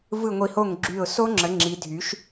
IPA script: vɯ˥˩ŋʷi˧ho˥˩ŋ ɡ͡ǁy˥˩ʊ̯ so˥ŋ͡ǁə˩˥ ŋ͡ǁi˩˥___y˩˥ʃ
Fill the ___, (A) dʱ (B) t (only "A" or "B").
A